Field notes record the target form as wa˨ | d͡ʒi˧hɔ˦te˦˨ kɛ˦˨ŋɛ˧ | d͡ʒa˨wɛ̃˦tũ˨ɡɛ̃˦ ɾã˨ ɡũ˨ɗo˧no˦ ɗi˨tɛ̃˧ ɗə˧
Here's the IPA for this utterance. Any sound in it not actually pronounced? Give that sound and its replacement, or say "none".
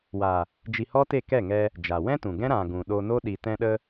none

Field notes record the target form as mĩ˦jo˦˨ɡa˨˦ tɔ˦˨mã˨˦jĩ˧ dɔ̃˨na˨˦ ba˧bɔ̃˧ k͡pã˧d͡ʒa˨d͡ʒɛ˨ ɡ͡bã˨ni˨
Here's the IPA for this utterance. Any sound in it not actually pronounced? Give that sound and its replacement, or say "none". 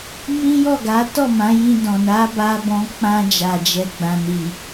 o˦˨ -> ɔ˦˨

